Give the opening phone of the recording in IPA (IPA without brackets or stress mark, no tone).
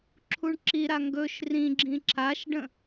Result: ǁʰ